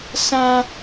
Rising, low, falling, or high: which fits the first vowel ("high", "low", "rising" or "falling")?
high